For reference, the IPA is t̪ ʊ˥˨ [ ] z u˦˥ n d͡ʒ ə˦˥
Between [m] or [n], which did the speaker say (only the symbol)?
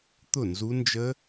n